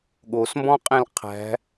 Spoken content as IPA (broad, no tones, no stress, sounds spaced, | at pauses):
ɠ o s m b ɔ̃ qʼ ẽ l qʰ æ̤